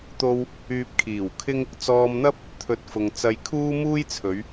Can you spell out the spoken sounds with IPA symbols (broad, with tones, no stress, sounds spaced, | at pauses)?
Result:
t̪ o˧ w | yː˧ p̚ kʰ iː˨˩ w kʰ ɪ˥ ŋ | t͡s ɔː˧ m n̪ ɐ˥ p̚ | t̪ʰ ɵ˨˥ t̚ f ʊ˨ ŋ t͡s ɐ˧ j kʰ uː˥ m uː˥ j t͡sʰ ɵ˨˧ ɥ